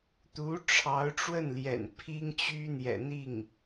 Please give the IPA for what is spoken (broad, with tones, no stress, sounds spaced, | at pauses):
t̪ u˧˥ ʈ͡ʂʰ ɑ˧˥ ʊ̯ ʈ͡ʂ w ə˥˩ n l j ɛ̰˨˩ n pʰ i˥ ŋ t͡ɕ y˥ n̪ j ɛ̰˨˩ n̪ i˥˩ ŋ